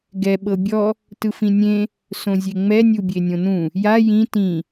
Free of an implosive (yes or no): no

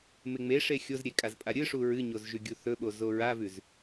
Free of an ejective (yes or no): no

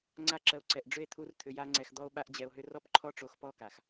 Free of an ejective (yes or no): yes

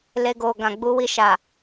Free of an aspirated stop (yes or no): yes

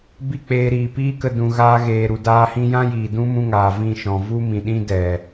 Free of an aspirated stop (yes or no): yes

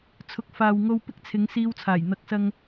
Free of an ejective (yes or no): yes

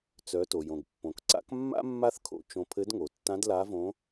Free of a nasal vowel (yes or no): no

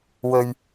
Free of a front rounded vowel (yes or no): yes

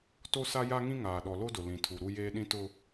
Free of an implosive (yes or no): no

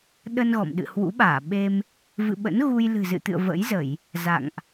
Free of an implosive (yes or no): no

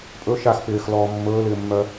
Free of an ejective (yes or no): no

